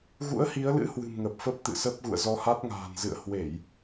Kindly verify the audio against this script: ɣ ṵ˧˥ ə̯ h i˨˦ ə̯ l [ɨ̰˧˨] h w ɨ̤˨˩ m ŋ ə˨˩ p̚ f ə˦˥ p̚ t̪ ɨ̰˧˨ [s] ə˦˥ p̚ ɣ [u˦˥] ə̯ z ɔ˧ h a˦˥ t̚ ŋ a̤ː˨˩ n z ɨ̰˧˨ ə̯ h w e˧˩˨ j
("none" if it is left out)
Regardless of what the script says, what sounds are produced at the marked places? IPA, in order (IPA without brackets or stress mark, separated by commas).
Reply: ɨ̰˧˥, s, ṵ˧˨